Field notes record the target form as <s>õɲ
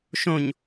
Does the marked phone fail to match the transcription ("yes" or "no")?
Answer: yes